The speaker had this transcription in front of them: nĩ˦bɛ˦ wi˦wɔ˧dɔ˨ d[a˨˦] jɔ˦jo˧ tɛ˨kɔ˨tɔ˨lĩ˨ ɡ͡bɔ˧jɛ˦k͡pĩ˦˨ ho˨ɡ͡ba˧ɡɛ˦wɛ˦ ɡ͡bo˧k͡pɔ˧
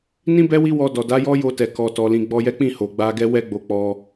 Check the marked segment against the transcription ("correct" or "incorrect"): correct